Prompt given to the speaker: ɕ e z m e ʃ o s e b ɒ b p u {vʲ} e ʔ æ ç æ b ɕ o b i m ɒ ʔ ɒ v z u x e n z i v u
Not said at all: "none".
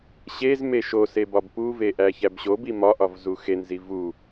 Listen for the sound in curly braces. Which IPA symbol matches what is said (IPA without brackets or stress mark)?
v